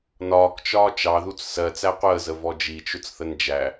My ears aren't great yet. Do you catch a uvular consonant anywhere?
yes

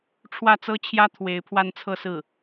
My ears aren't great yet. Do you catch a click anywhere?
no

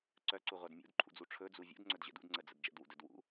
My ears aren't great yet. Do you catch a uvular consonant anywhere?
yes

